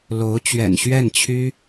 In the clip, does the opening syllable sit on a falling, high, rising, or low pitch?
rising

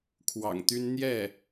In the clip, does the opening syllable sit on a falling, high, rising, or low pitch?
low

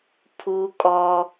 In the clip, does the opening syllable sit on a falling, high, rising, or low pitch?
high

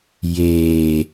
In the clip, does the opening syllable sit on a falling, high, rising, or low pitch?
low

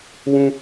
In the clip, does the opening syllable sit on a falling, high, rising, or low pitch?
high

